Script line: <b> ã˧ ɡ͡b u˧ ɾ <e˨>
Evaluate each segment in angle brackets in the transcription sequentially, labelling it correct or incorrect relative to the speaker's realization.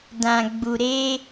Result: incorrect, incorrect

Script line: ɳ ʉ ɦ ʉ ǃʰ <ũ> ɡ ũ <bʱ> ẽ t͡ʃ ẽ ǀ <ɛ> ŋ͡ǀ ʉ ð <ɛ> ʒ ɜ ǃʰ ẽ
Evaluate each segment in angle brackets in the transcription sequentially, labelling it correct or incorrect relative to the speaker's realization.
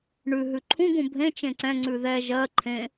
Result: correct, correct, incorrect, correct

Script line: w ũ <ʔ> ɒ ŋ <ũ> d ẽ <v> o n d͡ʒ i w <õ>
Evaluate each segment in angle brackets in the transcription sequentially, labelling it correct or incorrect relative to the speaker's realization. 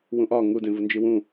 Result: correct, incorrect, correct, incorrect

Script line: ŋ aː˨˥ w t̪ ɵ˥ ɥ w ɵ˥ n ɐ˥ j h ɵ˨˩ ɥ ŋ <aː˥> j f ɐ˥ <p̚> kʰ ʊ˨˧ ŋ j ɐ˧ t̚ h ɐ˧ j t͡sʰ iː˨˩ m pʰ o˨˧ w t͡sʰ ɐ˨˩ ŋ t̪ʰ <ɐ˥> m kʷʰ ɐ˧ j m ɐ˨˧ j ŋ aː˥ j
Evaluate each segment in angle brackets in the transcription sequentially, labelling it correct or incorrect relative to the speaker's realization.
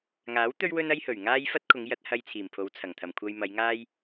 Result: correct, incorrect, incorrect

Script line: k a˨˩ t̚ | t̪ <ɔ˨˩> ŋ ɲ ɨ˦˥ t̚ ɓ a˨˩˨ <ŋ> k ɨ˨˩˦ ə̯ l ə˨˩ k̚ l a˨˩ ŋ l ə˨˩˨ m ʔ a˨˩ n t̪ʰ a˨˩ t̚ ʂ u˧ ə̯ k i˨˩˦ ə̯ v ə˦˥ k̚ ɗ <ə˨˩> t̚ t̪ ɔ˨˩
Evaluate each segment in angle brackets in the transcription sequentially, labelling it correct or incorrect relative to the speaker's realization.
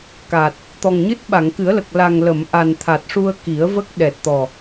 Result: correct, correct, incorrect

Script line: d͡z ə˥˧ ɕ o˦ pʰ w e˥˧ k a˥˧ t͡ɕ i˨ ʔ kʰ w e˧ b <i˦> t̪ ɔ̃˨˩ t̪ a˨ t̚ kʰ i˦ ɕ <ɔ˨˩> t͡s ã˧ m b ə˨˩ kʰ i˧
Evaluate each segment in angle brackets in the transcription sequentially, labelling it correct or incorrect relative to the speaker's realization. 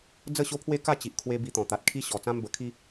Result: incorrect, correct

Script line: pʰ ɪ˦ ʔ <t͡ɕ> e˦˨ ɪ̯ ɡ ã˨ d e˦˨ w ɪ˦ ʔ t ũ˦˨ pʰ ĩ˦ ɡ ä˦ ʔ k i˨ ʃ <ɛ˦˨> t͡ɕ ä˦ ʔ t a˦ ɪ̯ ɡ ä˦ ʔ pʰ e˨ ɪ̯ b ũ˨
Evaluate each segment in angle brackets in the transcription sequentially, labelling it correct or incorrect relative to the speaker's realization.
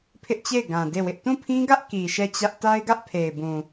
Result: correct, correct

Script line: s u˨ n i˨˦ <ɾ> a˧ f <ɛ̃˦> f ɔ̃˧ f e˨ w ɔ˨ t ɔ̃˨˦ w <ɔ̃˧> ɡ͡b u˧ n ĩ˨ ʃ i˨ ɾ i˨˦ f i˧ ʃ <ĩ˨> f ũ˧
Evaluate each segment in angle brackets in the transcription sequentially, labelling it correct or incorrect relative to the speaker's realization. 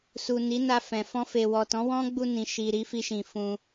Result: incorrect, incorrect, incorrect, correct

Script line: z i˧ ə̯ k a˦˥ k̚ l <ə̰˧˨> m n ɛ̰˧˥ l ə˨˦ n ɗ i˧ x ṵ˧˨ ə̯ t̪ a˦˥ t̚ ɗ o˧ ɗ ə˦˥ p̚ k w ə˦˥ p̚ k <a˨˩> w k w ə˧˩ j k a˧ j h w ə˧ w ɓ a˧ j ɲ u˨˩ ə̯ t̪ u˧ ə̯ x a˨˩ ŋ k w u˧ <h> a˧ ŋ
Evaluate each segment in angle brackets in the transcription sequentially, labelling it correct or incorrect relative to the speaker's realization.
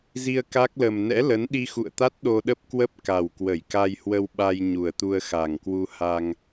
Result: incorrect, correct, correct

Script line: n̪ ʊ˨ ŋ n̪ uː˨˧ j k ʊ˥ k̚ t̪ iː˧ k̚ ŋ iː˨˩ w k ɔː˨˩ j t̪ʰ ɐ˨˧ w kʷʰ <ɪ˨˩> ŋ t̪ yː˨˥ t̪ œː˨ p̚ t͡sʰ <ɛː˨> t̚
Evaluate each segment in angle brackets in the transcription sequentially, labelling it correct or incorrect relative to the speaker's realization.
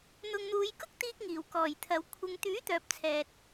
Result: incorrect, correct

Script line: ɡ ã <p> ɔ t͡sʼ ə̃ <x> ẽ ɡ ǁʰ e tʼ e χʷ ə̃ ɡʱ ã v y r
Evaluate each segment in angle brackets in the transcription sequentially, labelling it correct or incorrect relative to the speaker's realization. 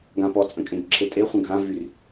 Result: correct, incorrect

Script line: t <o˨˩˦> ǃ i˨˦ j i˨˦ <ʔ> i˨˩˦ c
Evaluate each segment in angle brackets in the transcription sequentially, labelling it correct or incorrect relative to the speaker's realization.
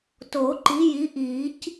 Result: correct, correct

